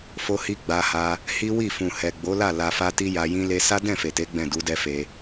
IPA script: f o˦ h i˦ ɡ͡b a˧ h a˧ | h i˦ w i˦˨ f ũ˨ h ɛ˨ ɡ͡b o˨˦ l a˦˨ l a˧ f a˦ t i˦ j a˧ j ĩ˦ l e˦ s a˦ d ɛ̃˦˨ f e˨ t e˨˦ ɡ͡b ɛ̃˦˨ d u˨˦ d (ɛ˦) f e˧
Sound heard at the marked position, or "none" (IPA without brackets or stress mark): ɛ˦